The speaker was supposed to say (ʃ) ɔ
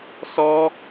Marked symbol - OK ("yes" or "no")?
no